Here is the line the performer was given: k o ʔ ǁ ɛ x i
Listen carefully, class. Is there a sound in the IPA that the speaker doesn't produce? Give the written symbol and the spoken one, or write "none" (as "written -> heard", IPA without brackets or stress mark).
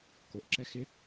i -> ɪ